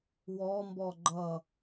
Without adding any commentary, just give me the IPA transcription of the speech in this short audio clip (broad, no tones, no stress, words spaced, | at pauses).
wɔmbɔ ɡ͡ǃʌ